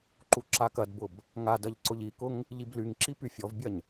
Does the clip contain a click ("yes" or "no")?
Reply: yes